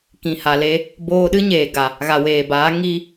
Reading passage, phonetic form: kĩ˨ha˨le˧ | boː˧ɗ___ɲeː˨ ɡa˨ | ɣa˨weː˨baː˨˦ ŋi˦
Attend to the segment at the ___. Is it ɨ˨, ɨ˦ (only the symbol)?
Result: ɨ˦